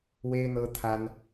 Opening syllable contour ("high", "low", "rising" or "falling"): high